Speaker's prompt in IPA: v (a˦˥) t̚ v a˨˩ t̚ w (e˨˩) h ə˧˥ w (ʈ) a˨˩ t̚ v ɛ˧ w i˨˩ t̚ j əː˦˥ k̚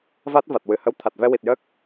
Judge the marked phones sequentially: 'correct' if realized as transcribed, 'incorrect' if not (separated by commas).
correct, incorrect, incorrect